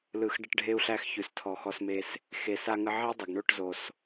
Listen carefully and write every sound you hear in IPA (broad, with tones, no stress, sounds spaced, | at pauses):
l ɯ˨ x ɖ ə˧ ʈ ɖʱ e˧ u̯ ɬ æ˧ x ç ʉ˨ s tʰ ɔ˨ x ɔ˧ s m e˧ s | x e˨ s a˧ ŋ ə˧ ʕ e˦ dˤ ə˨ ɡ ɳ o˦˨ ʈ z o˨ s